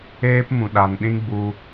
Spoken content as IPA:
eː˦pmũ˨ɗa˨n ɗĩ˦ɡ͡bu˧

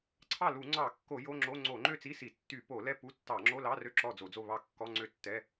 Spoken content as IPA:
ǀʰɑ˥˨ lu˧˩˧ŋ͡ǀɑ˧˩˧kːo˧˩˧ jo˧˥˧ŋ͡ǁo˧˥˧ ŋ͡ǀo˧˩˧ŋ͡ǃø˥˨t͡si˧˥˧ si˧˩˧ tːy˧˩˧ po˧˩˧lɛ˥˨ pu˧˥˧ tːɑ˧˩˧ŋ͡ǁo˧˥˧lɑ˧˥˧ rø˥˨ǁɔ˥˨d͡zo˧˩˧d͡zo˥˨ βɑ˥˨kːɔ˧˥˧ŋ͡ǀø˥˨tːɛ˧˥˧

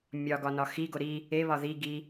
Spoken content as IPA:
mʲɒɡɒ nɒxiɡo ɾi | eβɒ ði ɡi

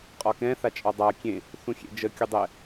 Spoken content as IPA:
qʼɒkɛ̃ θat͡ʃʼɒdˤa kʲẽ | θũxʲḛd͡ʒə kʲudˤɛ

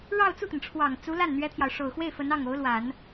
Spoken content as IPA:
ɻɑ˥˧ʊ̯t͡su˥˩t̪ə˩nʈ͡ʂʰwɑ˨˩ŋ t͡su˧˥la˥˩n n̪ɥɛ˥t̪ʰjɑ˨ʊ̯ ʂo˨˩ʊ̯xwe˥˩ɪ̯ fə˧˥nɑ˥˩ŋo˧˥ʊ̯lwa˨˩˦n

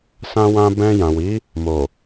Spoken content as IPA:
sã˧wã˧ bɛ̃˧jã˨wi˨˦ | mo˨

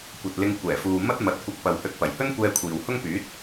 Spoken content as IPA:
kʷɐ˨t̚lɪ˧ŋ kʷɛː˨˩fuː˨ mɐ˥t̚mɐ˨˥t̚ kʷɐ˧k̚pɐ˨whɵ˧t̚ pɐ˨˩jhɵ˥nkʷɛː˧ kʷʰiː˨whʊ˥ŋpyː˨˥t̚

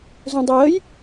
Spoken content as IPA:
zũdˤəjəj

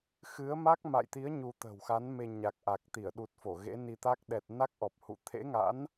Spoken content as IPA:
xɨ˨˦ə̯ma˦˥k̚ma̰˧˨jt̪i˨˦ə̯ ɲu˧t̪ə̤˨˩wxa˨˦nme˧ ɲa˨˩k̚ʔa˨˩k̚t̪i˧˩ə̯ ɗu˨˩t̚fo˧˩ ɣḛ˧˥ni˧t̪a˦˥k̚ ɗɛ˨˩t̚ na˦˥k̚ʔɔ˨˩p̚hṵ˧˨ t̪ʰḛ˧˥ŋa̰˧˥n

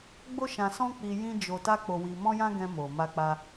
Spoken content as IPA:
ɡ͡bo˦ ʃã˧sɔ̃˦k͡pi˧ jĩ˦d͡ʒo˧ ta˦k͡po˧wi˧ mɔ̃˦jã˦ ɡɛ̃˧mo˨ ma˧k͡pa˧

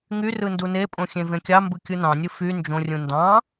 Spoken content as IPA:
ŋy rɯndunepʼõ xʲẽvẽkʲɑmbɯ kʲɯnɑ̃nʲɯ fy nd͡ʒõrʲũ ndɑ̃

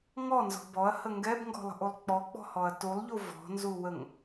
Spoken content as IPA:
ŋɔnzɔ̤ bɔɐ̯hə ŋɡɛbŋɡɔ̤lˠə̤ʔulˠ k͡pɔk͡pɔ̤hɔɐ̯ tulˠʎu vɔ̤nzuwəŋ

